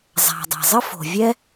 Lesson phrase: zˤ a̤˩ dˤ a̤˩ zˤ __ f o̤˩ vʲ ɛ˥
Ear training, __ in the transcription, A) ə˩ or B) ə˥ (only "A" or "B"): B